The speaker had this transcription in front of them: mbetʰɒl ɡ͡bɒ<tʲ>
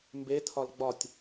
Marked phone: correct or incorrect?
correct